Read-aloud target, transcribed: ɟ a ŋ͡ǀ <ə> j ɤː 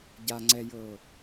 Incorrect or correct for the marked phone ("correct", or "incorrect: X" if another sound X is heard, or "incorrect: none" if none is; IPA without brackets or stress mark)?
incorrect: ɛ